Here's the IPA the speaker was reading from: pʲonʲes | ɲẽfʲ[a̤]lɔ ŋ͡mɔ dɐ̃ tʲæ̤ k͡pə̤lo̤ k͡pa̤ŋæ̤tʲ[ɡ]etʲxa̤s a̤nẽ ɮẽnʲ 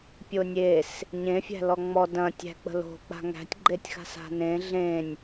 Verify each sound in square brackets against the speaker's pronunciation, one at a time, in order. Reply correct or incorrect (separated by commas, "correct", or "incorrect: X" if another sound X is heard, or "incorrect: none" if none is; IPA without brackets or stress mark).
incorrect: æ̤, incorrect: ɡ͡ǃ